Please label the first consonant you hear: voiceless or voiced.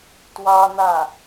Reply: voiceless